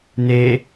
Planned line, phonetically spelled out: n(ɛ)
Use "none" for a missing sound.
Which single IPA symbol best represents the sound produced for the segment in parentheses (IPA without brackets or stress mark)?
e